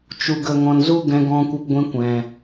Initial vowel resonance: oral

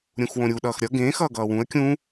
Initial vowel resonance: nasal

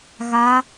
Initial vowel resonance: oral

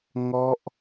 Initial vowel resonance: oral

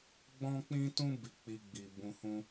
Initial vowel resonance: nasal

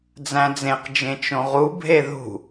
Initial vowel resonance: nasal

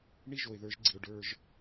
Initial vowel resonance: oral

